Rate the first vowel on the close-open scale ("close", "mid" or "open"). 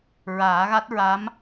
open